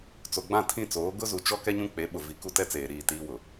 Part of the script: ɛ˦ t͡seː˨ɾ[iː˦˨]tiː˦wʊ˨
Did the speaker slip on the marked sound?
no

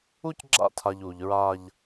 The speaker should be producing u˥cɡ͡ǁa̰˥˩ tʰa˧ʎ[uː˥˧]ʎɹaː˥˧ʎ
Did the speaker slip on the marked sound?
yes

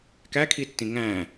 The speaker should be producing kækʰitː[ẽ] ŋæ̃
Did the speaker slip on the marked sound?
yes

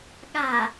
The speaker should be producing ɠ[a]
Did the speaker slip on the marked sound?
no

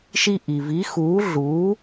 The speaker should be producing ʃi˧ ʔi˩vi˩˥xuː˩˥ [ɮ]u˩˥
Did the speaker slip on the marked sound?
no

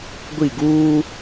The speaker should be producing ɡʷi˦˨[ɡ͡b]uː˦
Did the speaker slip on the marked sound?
yes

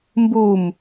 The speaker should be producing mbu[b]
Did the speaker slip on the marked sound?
yes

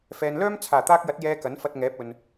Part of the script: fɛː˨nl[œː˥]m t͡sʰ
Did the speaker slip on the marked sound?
no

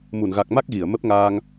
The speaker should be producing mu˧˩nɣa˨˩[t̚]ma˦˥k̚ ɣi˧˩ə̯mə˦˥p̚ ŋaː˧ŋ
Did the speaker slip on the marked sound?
yes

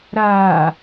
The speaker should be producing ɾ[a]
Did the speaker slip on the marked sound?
yes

